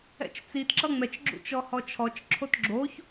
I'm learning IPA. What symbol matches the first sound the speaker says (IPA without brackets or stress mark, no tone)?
ɛ̰